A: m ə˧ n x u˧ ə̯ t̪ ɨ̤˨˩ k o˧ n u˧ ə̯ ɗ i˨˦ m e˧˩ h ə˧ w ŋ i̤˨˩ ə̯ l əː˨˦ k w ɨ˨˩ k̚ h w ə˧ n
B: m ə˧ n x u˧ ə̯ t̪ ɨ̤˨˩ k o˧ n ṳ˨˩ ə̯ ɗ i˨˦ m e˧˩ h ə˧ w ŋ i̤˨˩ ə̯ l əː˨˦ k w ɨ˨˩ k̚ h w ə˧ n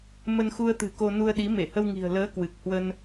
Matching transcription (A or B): A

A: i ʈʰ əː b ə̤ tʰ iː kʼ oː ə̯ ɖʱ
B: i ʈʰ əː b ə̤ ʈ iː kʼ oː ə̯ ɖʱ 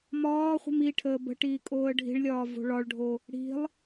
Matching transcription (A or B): B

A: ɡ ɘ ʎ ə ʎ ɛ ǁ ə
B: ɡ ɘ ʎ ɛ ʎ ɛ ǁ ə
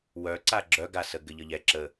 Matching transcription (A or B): A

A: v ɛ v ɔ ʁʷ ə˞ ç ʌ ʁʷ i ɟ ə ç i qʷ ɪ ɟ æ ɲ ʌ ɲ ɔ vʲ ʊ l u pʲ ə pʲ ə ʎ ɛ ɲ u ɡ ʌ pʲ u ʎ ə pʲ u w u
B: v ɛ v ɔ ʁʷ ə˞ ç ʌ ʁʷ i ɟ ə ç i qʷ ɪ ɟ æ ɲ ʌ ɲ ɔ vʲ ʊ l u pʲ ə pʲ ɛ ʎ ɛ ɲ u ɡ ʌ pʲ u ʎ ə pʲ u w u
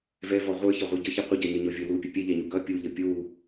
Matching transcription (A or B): B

